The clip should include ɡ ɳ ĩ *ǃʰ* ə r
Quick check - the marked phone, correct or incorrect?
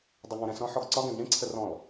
incorrect: ǀʰ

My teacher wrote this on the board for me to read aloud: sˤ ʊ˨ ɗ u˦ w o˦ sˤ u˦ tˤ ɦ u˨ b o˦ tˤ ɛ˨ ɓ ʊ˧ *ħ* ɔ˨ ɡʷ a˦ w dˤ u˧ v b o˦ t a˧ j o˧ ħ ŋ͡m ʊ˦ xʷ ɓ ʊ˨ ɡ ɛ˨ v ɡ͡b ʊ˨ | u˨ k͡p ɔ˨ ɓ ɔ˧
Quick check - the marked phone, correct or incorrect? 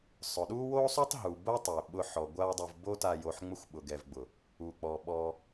correct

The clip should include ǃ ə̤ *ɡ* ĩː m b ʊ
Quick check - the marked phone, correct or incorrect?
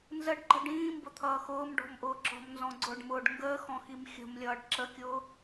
incorrect: ɖ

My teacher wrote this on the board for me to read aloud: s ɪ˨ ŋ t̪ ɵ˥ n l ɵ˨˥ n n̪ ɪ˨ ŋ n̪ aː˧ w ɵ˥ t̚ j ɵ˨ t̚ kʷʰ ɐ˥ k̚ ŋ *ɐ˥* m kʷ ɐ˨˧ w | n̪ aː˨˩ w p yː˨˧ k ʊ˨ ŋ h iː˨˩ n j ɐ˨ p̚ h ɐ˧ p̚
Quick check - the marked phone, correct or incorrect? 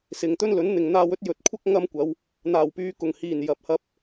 correct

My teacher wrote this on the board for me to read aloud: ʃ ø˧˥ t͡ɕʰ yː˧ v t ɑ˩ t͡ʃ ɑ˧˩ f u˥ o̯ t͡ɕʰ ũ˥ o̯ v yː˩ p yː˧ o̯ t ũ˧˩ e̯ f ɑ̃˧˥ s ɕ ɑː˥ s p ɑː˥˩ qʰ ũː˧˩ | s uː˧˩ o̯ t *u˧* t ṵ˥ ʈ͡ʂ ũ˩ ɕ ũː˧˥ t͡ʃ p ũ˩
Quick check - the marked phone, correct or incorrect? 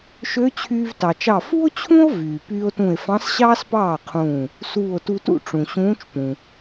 correct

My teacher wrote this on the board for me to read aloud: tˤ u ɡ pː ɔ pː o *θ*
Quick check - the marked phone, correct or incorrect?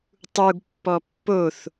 correct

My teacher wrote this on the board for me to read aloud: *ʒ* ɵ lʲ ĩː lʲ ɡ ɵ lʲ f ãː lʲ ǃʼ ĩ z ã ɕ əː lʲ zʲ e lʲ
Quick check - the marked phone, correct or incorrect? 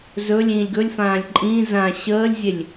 incorrect: z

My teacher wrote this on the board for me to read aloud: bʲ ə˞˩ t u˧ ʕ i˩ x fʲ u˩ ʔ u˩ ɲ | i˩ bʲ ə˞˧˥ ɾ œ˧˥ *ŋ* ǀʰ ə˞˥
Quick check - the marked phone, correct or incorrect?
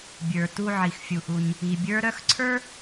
incorrect: x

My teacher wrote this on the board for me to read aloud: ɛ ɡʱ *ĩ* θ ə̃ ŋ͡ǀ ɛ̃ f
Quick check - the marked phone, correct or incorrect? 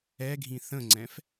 correct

